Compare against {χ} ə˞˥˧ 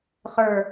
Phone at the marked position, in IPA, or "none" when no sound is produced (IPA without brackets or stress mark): χ